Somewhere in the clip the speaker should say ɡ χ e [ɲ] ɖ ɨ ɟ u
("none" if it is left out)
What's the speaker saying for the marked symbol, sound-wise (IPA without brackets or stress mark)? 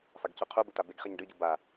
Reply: ɲ